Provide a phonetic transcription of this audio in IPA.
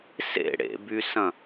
s ḛ ɽ ḛ b y s ɐ̃

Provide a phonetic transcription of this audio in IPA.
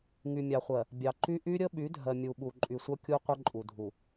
ŋ y˨ mʲ ɑ˨ χʷ ɜ˨ | bʲ ɑ˨ ǃ y˦ ʔ y˦ ɾʲ ə˦ ɓ y˨˦ dʱ ɜ˨ mʲ u˨ ɓ u˨ ǃʼ y˨ sʷ ʌ˦ kʲ u˦ qʷ ə˦ ǃʼ u˨ dʱ u˨

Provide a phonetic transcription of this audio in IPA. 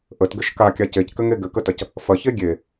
ʔ ə t ɡ ɘ ʃ k a kʲ a c e c k ɘ ŋ e ɡ ɘ k ə t ɐ c | f ɐ ç e ɡʲ e

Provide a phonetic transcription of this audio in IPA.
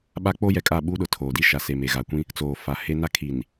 ɓ a˦ k͡p o˦ j ɛ˨ kʼ a˦˨ ɓ u˦ ɗ ʊ˨ tʰ oː˨ d i˦ ʃ a˨ s e˨ m e˨ ɣ a˨ kʷ ĩ˦ | t͡s oː˨ f a˨ h e˦ n a˦ kʰ i˨ n

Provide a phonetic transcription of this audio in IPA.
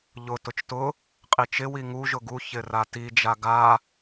ʎ ʊ t ʊ t͡ʃ t ʊ | qʼ i t͡ʃ ɪ w i ŋ u ʒ ʊ ɡ u ç ɪ r a t i d͡ʒ a ɡ a

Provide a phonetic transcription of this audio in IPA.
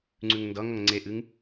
ŋ͡ǀ ʉ ŋ n d ʌ ŋ ʌ ŋ ŋ͡ǀ e ʔ ɨ ŋ

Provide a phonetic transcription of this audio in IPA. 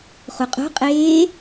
χ u qʼ o̤ qʼ eː

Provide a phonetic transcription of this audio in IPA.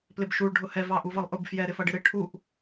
p l ɪ b ʃ u ɭ ɖʱ ʊ h ɛ v ɑ ʔ u v ʌ lˠ ʔ ʊ b f j ɛ ɾ ɪ f ʌ ɖ ɪ ɾ ɪ ʈʰ u ʔ

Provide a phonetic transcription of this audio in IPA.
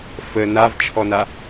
f ə n a v t͡ʃʰ ɔ n a

